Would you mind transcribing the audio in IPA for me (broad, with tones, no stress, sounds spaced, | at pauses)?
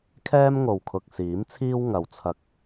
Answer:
kʰ ɛː˥ m ŋ o˨ w kʰ ʊ˨ k̚ s iː˨˥ m t͡sʰ iː˥ w ŋ ɐ˨ w t͡sʰ ɐ˧ k̚